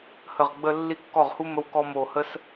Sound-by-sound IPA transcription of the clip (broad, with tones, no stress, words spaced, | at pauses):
hə˨˩ʁɡ͡bə˧ lːi˥kːɔ˥˨ʁ hu˥mə˧˥wkɔ˧mo˨˩ hə˧s